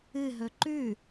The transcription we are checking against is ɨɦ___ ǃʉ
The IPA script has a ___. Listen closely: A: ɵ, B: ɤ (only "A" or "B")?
A